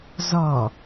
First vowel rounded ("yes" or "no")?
yes